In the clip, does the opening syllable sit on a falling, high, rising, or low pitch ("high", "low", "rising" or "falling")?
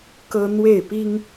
high